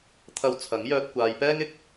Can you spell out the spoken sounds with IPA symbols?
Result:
t̪ʰɐ˨˧w t͡sʰɐ˨˥ŋjœː˧t̚ kʷaː˨˧j pɛː˥ŋɪ˥k̚

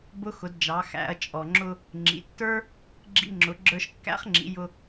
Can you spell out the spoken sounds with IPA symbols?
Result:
bʊ˧˥xʊ˩˧dd͡ʒɑ˩˧ xæ̰˩˧ɐ̯t͡ʃʼɔ˩ ŋ͡ǁʊ˧ | ŋ͡ǁḭ˩˧tːə˞˥ | ɡ͡ǁḭ˧ŋ͡ǁʊ˩˧ ɡ͡ǁə˞˧ʃkːæ̰˧˥χŋ͡ǁḭ˩˧ jʊ˧

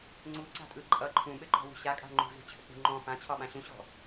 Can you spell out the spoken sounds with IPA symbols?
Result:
ŋ͡ǀuǀa̤tʼɯ ǃʼʌ ǃʰũɓɘǃɔ̤wṳ ɕakʼa̤ ŋ͡ǃṳzṳt͡ɕʰɘk͡pṳ ŋ͡ǃɔ̃ fãt͡ɕʰɒɓã ɕũɕɔ̤

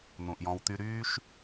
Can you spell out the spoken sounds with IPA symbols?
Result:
n̪ũ˨ʔjɔ̃˧wt̪y˦ ɾyː˦ʃ

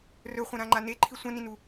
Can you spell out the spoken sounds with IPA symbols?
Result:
rɵχʷɐ̃ɾãŋ͡ǃa neǃʰi sʷɐ̃nĩnu

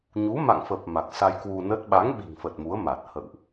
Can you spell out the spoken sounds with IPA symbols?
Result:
ɲu˨˦ma̰˧˨ŋfə˨˩p̚ ma˨˩k̚sa˧jkwu˧nə˦˥t̚ ɓa˨˦ŋɓi̤˨˩ŋfə˨˩t̚ mu˨˦ə̯ma˨˩t̚ hə̰˧˨wʔ

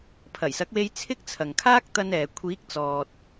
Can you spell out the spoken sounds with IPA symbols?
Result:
pʰɐ˨˩jsɐ˨˥k̚we˧j t͡sʰɪ˥k̚t͡sʰɐ˨ŋ kʰaː˥k̚t̪ɐ˧nɛː˨ kʷʰiː˨˥k̚t͡sɔː˨t̚

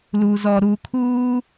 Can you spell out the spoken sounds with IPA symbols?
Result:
lu˨zɔ˨ ɾu˨kʰuː˦

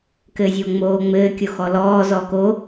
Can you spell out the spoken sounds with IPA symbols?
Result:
kɘːzʲoːŋ͡moːŋ͡mɘː kʲoxɔlɔː zɔko

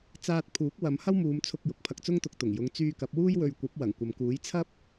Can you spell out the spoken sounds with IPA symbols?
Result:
t͡saː˧t̚pʰuː˨˥k̚ wɐ˨˧mhɐ˥wmuː˨˧mt͡sʰʊ˧k̚ jʊ˨˥k̚pʰɐ˧k̚t͡sʊ˥ŋt̪ʊ˧k̚ t̪ʊ˨˩ŋjʊ˨˧ŋ t͡syː˧kɐ˨˥p̚wuː˥j wɵ˧ɥkʷɐ˨˥p̚ wɐ˨˩ŋkʷɐ˨mkuː˨˥j t͡sʰɐ˥p̚

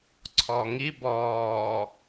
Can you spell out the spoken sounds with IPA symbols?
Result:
ǀʰɔŋi bɔː

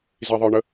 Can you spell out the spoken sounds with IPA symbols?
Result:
ziðˤə˞ɳə

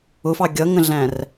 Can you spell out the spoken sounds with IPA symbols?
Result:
ʊfɑ ɡʲʌŋə̃ɮæ̃r

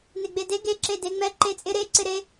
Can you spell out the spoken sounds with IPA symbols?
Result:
neɡ͡bede ɡe ǁedeŋ͡mɛ ǃet͡sʼɪ ɾe ǀɪɾe

